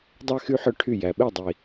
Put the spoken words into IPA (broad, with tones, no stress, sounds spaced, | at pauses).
dˤ ɛ˦ x y˦ ħ œ˦ ʈʰ y˦˨ j æ˨ ɓ e˦˨ dˤ i˨